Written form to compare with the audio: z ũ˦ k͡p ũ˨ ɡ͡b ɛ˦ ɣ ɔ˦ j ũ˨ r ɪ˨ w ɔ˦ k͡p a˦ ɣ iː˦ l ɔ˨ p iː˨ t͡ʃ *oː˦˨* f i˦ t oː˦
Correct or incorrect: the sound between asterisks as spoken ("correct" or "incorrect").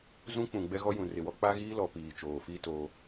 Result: incorrect